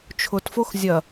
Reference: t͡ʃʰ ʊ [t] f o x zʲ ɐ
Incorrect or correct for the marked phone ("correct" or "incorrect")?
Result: correct